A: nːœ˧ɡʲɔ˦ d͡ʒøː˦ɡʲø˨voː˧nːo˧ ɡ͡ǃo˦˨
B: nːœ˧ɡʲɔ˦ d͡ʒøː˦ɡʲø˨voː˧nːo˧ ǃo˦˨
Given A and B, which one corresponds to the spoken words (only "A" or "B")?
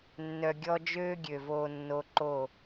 B